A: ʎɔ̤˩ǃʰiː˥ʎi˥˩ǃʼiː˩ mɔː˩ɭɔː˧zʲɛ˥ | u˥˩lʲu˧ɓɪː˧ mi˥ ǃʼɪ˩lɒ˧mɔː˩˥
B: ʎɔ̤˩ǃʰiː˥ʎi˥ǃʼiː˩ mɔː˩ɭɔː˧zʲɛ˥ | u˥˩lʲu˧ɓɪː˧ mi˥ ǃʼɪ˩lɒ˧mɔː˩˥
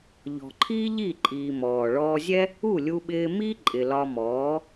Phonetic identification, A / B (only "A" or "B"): A